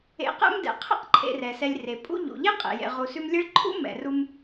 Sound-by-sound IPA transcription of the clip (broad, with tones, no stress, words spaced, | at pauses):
ḛ˨qɛ̰˦m dɛ̰˩qʰɛ̰˥q ǃʰḛ˨rɛ˩sɛ˨lʲre˩ pʼṵ˦ ʎṵ˩ ʎe˥qʼḛ˩jḛ˨ ʁu˨sʉ˦mlʲɛ˥ɭ ǃʰṵ˥ mɛ̰˨ru˦m